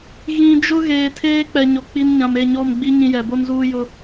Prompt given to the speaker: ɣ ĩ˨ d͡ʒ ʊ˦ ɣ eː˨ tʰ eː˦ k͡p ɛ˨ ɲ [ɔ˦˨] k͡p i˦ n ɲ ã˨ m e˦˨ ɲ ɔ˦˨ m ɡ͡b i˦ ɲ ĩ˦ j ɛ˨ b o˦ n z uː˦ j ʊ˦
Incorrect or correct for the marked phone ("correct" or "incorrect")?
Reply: incorrect